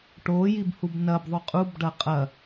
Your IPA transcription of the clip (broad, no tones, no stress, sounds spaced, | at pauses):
ʈ o j i b h u b n ɐ b ðˤ ʉ qʼ u b ɖ ɐ qʼ ɐ